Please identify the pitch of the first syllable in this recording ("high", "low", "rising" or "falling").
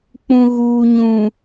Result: low